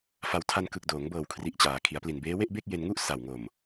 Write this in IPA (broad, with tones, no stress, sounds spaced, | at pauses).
f a˧ w tʰ a˧ n k ɯ˨˩ k̚ d oː˩˦ ŋ b ɤː˨˩ w kʰ r i˨˩ ʔ t͡ɕ aː˩˦ kʰ i˩˦ a̯ p l i˨˩ n b eː˦˥ w e˥˩ ʔ b e˥˩ k̚ j e˧ n ŋ u˥˩ ʔ s a˨˩ w ŋ o˨˩ m